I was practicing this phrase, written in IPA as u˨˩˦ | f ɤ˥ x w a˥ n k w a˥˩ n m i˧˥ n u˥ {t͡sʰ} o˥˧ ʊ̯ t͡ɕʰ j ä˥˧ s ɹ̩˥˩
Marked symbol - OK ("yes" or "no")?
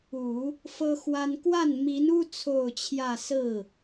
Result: yes